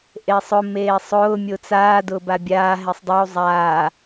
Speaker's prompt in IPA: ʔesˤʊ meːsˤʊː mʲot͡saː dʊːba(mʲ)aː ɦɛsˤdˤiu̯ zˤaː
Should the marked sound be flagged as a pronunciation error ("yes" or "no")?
yes